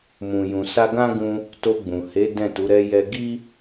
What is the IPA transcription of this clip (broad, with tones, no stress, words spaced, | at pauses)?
mũ˨jũ˨ sa˧ɡã˦ɡũ˧ | to˧ɡ͡bũ˨he˨˦ dɛ̃˦˨tu˨˦ ɾɛ˧jɛ˧ ɡi˦